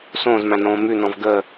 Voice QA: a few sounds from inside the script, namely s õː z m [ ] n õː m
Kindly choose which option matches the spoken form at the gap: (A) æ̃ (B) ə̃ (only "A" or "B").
A